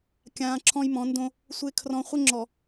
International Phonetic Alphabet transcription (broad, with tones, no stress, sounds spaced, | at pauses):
kʲ ãː˨ ǁʰ ɔ̃˦ j m ɔ̃˨˦ n d õ˦ | sʷ ɪː˨ kʰ r ɔ̃˨ χʷ ɪ˦ ŋ͡ǁ ɔ˨